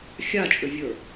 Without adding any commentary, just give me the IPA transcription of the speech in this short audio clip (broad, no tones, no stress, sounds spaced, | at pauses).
xʲ a t͡ʃʼ ʏ vʲ ə˞